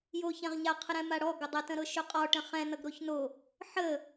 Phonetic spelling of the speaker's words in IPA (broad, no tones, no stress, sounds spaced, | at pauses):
j o ç ɛ̃ ʁ ɲ a qʰ ə ɾ ɛ̃ m a ɽ ɔ ɡ ʊ dˤ ɛ t ə̃ ɾ ɤ ʃ ɵ qʼ ɔ ʈ ə̃ χ ɛ̃ n ʌ ɡ ɾ o ç n o | ħ ə